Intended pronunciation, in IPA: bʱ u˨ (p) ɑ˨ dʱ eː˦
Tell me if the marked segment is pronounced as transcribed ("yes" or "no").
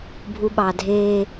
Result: no